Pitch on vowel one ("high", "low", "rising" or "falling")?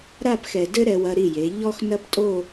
falling